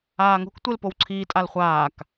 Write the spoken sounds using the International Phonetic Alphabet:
aː ŋ o̤ k tʷ e l p o w ǀʰ iː tʼ a l χʷ aː k

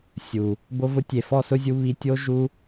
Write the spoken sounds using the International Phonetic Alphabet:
sʲ u˨ | b o˧ v ʊ˧ tʲ e˨ f ɔ˦˨ s ʊ˦ zʲ u˧ β i˧ tʲ o˦ ʒ u˦

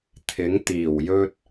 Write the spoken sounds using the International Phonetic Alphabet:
t̪ʰ ɪ˨˥ ŋ t̪ iː˨˩ w j ɵ˥ t̚

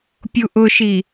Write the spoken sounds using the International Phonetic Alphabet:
pʲ u ʔ ʊ ʃ i

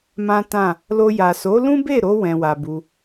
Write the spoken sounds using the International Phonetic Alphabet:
m ã˦ t ã˦˨ | l o˧ j a˨ s o˨˦ l ũ˦ b e˦˨ ɾ o˧ w ɛ̃˧ w a˧ b u˧

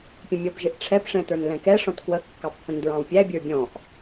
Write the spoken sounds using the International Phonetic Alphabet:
pʲ ə̃ mʲ ɔ b ʒ ɪ ʔ ʈ͡ʂʰ ɛ p ʂ ɛ̃ t ə˞ n l ɛ̃ k ɛ ʂ ɔ̃ t k w ə kː ɑ pː ə̃ n d ɹ ɑ̃ w pʲ æ bʲ ə˞ bʲ ɔ̃ ʔ

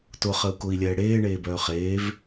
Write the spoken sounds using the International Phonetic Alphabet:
t ʊ χ ə u̯ k ʊ i̯ lʲ ɛː ɽ eː ɳ eː b œː χ eː v

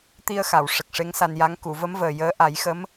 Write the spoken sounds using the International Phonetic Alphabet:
t̪ i˧ ə̯ x a˨˩˨ w ʂ ə˨˩ k̚ ʂ e˧˥ ŋ s a˧ n j a˧˥ ŋ k u˨˩˨ v ə˧˥ m v əː˨˩ j əː˧˥ ʔ a˨˩˦ j x ə˧˥ m

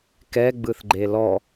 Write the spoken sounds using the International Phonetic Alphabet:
k ɛ ɡ͡b ɯ θ ɡ͡ǃ e l ɔ

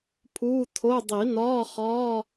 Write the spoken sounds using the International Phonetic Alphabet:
pʰ uː˧˥˧ tʰ o˧˥˧ dˤ i˨˩˦ n ɒː˧˥˧ χ ɒː˧˥˧

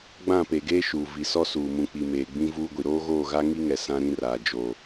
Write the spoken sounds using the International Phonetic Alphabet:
ɡ͡b ã˦˨ p e˨ ɡ eː˦ ʃ uː˨ v i˨ s ɔ˦ s uː˨ m ũ˨ k͡p i˨ m eː˨ ɡ͡b ĩ˦ v uː˦ ɡʷ i˨ ɾ oː˦ ɣ oː˦˨ ɣ a˦ ŋ i˦ ŋ ɛ˨ s ã˦ ɾ ĩ˦ r aː˨ d͡ʒ oː˨

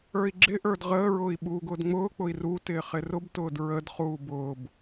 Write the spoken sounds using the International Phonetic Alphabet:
ə˞ i̯ ɡ͡ǁ ɪ ʔ ə˞ d ʁ əː ɹ ʊː i̯ ɓ uː ɡ ʊː d ŋ͡m ʊː k͡p ʊ i̯ r u t ɪː χ ɪ r ʊ b t ʊː d ɹ ə d χ uː b ʊː b

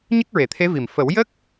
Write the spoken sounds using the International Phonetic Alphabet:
ɲ ə˦˥ k̚ ɹ e˨˩˨ t̪ʰ e˧˥ v i˨˩ m f ə˨˩˦ w j ə˦˥ k̚

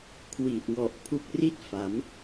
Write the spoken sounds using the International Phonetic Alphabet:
kʰ w i˨˩ ʔ w ɔ˨˩ ʔ pʰ u˦˥ k̚ r i˥˩ t̚ f a˩˦ m

